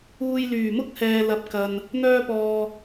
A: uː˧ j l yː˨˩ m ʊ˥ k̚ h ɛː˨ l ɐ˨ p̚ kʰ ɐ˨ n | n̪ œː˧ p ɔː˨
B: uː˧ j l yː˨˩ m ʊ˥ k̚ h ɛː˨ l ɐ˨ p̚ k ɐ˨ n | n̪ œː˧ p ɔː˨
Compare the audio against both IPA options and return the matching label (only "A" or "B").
B